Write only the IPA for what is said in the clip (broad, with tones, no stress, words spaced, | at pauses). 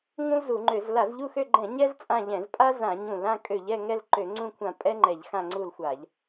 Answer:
ŋũ˥lzu˧˩˧ŋ͡ǃø˧˩˧z la˧˩˧zʎu˦˨xø˦˨ɡ͡ǃɛ̃˧˩˧ ɲɛ˥z t͡sʼã˦˨ʎɛ̃˧˩˧z pʼa˥zã˧˩˧ɲũ˧˩˧l ã˦˨kʼø˧˩˧ʎɛ˦˨ŋɛ˦˨l ǃø˧˩˧ŋ͡ǀũ˦˨kʷʰã˧˩˧ pʼɛ˥ŋ͡ǃɛ˧˩˧ʎxã˦˨ ŋ͡ǀu˦˨lxʷa˧˩˧ʎ